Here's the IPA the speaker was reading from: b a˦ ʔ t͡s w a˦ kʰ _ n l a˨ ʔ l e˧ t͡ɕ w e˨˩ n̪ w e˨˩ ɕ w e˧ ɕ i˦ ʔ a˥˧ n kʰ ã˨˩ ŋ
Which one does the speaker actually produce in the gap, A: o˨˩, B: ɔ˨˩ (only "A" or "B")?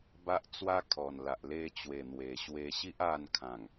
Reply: B